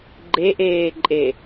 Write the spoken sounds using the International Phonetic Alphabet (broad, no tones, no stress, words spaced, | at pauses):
ɡ͡ǃeʔeːǃʼe